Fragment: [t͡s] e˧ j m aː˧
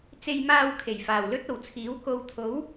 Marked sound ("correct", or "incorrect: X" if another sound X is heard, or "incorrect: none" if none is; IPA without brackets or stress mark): correct